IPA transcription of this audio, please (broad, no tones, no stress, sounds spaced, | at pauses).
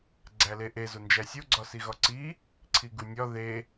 ɡ͡ǀ æ l e ʔ e z o n d͡ʒ æ sʲ o ɡ͡ǀ ɒ s i ɣ ɒ ǀ i | ǀʰ i ɡ u nʲ ɒ ð e